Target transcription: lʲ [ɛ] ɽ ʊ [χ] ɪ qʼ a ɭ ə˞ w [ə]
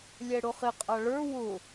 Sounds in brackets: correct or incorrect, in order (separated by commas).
correct, correct, incorrect